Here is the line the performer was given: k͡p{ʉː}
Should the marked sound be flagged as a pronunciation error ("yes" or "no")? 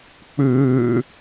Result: no